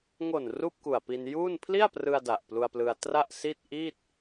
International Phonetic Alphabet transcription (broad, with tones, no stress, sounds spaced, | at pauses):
ŋ o˨˩ n r uː˥˩ p̚ k u˨˩ a̯ p i˧ n j uː˥˩ n pʰ l i˥˩ a̯ p r ɯ˧ a̯ d a˨˩ ʔ p l u˧ a̯ p l ɯ˧ a̯ t r a˥˩ ʔ s i˥˩ t̚ ʔ iː˥˩ t̚